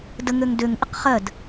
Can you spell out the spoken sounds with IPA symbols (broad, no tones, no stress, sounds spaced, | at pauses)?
d ə ŋ ø ŋ d ø ŋ ʔ ɪ q χ ɜ d